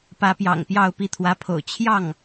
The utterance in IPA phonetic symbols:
p ä˧˥ p j ɑ̰˨˩ ŋ p j ɑ˥˧ ʊ̯ p i˥˩ t̪ʰ w ä˧˥ pʰ o̰˨˩ ʊ̯ t͡ɕʰ j ɑ˥˩ ŋ

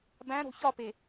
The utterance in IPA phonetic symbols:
b æ̃ ɾ o̤ ç ɒ p e

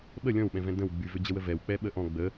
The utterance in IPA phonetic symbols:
ɓ ə lʲ ɔ̃ w ɓ ɛ̃ v ɛ̃ d ə̃ w ɡ͡b y v ʏ d͡ʑ ə w ə v ɛ w k͡p ɛ ɓ ə ʔ ɔ̃ ɡ͡b ə

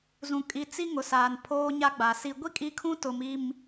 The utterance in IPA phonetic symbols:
z ũ˨ kʼ i˨ t͡s i˦ ŋ ʊ˨ s aː˨ n pʰ oː˦ ɲ a˦ ɡ͡b a˨ s i˨ ɡʷ i˦ kʼ i˦ kʰ ũ˦ t ʊ˨ m i˨ m

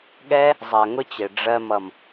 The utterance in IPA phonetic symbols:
ɠ ɛ˦ | zˤ ɜ˨ ŋ ʊ˦ t͡ɕ ɪ˨ ɖ͡ʐ ɜ˧ m ʌ˨ m

